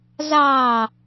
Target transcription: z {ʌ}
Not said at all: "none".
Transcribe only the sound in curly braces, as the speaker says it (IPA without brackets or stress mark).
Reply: ɑ